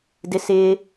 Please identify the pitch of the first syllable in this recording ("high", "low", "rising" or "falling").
high